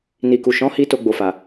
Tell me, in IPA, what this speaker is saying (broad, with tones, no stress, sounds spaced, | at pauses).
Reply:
n i˨ k u˨ ʃ ɔ̃˨˦ h i˧ t o˧ ɡ͡b o˨ f a˨